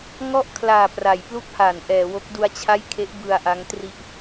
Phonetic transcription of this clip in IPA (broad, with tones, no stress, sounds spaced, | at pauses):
ŋ ɔ˥˩ ʔ kʰ l aː˨˩ p r a˩˦ j p l u˥˩ k̚ h a˩˦ n ʔ ɛː˩˦ w o˦˥ k̚ d u˦˥ a̯ t͡ɕʰ a˥˩ j kʰ e˦˥ ʔ b ɯ˧ a̯ ʔ a˦˥ ŋ t r i˥˩ ʔ